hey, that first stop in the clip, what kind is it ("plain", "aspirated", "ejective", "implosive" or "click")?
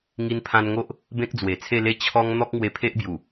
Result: aspirated